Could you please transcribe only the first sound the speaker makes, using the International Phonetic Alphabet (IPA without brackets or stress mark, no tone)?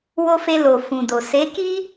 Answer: w